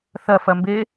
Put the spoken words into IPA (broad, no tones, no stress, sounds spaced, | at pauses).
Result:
θ ɐ f ɐ m b e